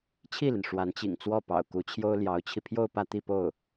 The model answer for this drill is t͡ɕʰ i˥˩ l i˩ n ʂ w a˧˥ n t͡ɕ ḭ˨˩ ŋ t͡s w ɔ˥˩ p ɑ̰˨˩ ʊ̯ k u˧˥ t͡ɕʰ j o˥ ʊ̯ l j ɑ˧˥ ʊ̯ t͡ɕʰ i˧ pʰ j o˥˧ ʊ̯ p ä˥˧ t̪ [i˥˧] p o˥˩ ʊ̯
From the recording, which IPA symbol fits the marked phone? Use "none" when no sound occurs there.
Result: i˥˧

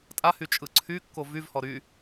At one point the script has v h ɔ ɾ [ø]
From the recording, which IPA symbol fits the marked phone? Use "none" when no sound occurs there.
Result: y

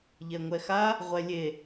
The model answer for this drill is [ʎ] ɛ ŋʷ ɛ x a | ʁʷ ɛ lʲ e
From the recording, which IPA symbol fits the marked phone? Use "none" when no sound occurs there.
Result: ʎ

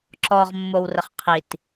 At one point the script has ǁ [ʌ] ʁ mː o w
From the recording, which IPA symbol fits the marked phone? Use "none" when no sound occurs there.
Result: ɔ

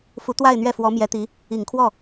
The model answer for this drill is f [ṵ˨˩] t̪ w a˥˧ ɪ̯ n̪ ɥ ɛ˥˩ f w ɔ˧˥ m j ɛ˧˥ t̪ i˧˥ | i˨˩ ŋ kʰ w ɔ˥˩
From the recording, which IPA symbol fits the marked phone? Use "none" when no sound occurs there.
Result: u˧˥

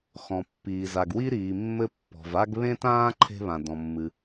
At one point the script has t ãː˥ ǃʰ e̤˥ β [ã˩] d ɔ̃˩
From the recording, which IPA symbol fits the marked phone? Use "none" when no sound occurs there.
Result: ã˩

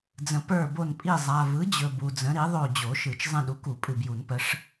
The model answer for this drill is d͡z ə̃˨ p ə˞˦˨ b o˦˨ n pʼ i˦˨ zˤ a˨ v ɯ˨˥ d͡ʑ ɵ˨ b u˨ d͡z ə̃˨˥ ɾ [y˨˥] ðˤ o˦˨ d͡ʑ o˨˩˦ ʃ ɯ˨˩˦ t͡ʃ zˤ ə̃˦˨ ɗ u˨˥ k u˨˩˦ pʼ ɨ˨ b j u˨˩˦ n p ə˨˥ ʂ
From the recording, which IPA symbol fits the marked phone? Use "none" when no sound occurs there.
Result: i˨˥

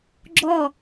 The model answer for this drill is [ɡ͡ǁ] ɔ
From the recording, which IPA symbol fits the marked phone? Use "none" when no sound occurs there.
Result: ɡ͡ǁ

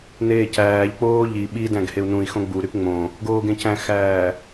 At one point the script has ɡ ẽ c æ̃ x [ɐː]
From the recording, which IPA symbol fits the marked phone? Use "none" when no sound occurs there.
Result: æː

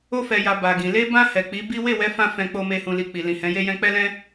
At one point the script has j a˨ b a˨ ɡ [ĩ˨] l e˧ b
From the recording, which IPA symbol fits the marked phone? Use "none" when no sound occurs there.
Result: ĩ˨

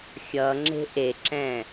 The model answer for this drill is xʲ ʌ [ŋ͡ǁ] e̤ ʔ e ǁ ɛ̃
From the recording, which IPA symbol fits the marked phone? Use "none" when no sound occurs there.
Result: ŋ͡ǁ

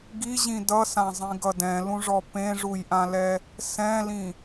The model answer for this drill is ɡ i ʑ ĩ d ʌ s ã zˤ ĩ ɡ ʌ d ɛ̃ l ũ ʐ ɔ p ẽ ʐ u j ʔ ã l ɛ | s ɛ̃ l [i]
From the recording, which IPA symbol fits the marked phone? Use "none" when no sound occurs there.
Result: ĩ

